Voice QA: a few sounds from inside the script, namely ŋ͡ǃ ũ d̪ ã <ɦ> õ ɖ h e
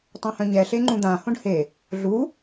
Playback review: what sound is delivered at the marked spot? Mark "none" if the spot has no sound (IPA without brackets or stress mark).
h